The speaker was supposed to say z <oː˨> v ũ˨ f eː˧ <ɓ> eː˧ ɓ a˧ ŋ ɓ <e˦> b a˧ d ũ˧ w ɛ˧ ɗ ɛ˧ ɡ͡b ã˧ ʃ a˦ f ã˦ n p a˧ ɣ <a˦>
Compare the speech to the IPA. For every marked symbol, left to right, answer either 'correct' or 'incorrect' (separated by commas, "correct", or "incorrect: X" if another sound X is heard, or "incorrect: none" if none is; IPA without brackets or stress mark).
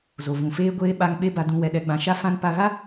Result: incorrect: o˨, incorrect: ɡʷ, correct, correct